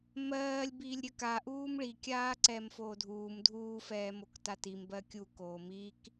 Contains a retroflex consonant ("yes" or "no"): yes